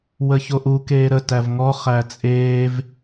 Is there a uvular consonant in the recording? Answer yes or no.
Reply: yes